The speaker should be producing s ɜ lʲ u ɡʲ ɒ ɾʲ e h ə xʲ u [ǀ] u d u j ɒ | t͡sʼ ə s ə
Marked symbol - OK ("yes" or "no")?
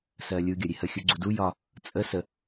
no